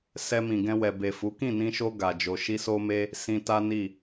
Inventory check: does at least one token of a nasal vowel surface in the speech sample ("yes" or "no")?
yes